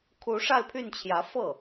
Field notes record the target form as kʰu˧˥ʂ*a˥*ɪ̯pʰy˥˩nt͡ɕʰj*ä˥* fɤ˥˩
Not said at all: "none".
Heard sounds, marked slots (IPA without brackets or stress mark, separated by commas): a˥˧, ä˧˥